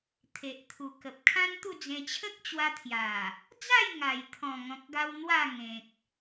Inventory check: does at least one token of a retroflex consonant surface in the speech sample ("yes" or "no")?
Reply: no